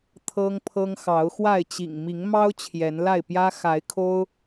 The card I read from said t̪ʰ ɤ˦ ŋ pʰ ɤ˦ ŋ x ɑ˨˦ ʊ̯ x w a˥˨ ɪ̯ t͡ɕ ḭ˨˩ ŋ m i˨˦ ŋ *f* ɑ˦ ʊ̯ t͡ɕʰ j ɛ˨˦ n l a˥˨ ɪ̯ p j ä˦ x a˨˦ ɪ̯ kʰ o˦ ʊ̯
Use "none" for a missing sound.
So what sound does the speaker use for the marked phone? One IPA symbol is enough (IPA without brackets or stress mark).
m